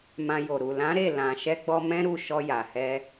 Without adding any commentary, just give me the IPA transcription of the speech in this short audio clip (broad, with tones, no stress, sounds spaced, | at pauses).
m ã˧ j o˨ ɾ u˨ l ã˨˦ ɾ e˦˨ l ã˨ ʃ ɛ˧ ɡ͡b ɔ˧ m ɛ̃˦ ɾ u˦˨ ʃ ɔ˧ j a˨ h ɛ˧